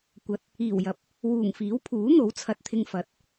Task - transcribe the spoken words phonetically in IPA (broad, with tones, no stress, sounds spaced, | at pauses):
kʷ ɐ˧ t̚ | iː˨˩ w j ɐ˨˥ p̚ | w uː˨˩ ŋ f iː˨˥ w pʰ uː˨˥ n̪ o˨˥ w t͡sʰ ɐ˨ t̚ t̪ʰ ɪ˧ ŋ f ɐ˨˥ t̚